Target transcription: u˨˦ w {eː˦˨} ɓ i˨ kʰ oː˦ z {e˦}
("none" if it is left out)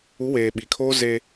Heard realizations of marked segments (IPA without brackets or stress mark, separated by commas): eː˨, e˦